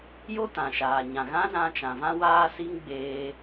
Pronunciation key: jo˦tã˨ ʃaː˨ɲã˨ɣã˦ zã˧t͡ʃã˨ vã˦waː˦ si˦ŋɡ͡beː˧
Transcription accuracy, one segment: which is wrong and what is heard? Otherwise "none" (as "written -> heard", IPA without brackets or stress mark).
none